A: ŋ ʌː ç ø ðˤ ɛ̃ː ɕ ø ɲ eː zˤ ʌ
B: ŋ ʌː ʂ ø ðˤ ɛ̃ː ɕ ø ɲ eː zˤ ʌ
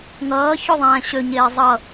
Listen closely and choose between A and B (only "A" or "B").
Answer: A